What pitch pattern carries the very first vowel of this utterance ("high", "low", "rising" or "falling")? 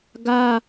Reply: high